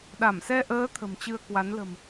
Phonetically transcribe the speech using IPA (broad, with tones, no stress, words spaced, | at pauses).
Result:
ɗa˧˩msɛ˧ʔəː˨˦ t̪ʰə̤˨˩mt͡ɕɨ˧ə̯kwa˨˦n lə̤˨˩m